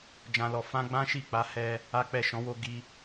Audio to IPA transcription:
d͡ʒ ã˨ l ɔ˨ f ã˧ ɡ͡b ã˦ ʃ i˦˨ k͡p a˨˦ h ɛ˧ | a˦ k͡p ɛ˦˨ ʃ ɔ̃˨˦ w o˧ ɡ i˧

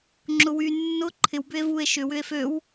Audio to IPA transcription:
ŋ͡ǁ ʊ w y nː ʊ ǃʰ ɪ w b ʏ e̯ v u e̯ ʃ ʏ w ʏ e̯ f ø w

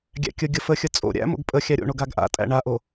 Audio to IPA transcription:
ɡʲ æ̰ kʲ ə ɡʲ ə f ə xʲ ə t͡sʼ o̰ ɾʲ æ̰ m o̰ ɡ pʼ ə xʲ æ ɾʲ o̰ ɳ o ɡ a ɡ ʔ a̰ tʼ æ̰ ɳ a ʔ o

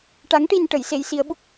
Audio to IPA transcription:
ʈ a˧˥ ŋ ʈ i˧ n ʈ ə˨˩˦ j s e˧˥ j s i˧˥ ə̯ ɓ u˦˥ k̚

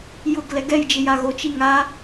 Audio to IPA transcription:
j ʊ ɡ l ɛ ɡ ɛ j d͡ʒ ɪ j a ɣ o t͡ʃ i ŋ a

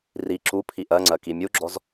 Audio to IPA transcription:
r i ǁ u pʰ i ʔ ɜ ŋ͡ǀ ɜ k i mʲ u ɡ͡ǁ ɔ z

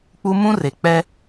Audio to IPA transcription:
k͡p u˦ m ũ˦ r e˨ k͡p ɛ˦

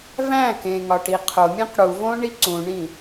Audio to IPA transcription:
v æ̃ k ẽ ŋ ɒ ʈ i qʰ o mʲ ẽ q ɽ u v õ ɳ i ǀ ũ ɳ ĩ

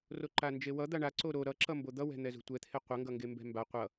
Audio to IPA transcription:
r o ǃ a n d͡ʒ e w ʌ d̪ a ɳ a ǀ o ɾ o ɾ ʌ ǁ ʌ m b o d̪ ʌ w ɛ̤ n̪ ɛ z ṳ tʷ ɛ t̪ʰ e qʷ ʌ ŋ ɡ ʌ ŋ ɡ e m b ɛ̤ m b a qʷ ʌ

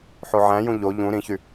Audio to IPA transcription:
ħ o ʕ æ̃ j ũ ʎ o ʎ ũ ɾ ĩ ç y

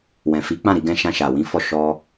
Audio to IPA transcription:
w ɛ̃˨ f i˨˦ k͡p ã˦˨ ɾ i˧ ɡ ɛ̃˧ ʃ ã˧ ʃ a˨ w ĩ˨˦ f ɔ˧ ʃ ɔ˧

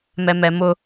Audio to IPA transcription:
m ɛ m ɛ m ʊ

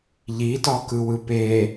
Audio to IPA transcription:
ʎ i t ɒ k ɯ w ɯ p e

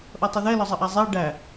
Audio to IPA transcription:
ʔ ʌ tˤ i ð ɛ l ɒ zˤ ə ʔ æ zˤ ɛ ɖ æ

